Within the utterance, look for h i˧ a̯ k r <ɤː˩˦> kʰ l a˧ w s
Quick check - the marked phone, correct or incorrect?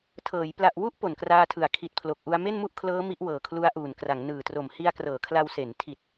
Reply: correct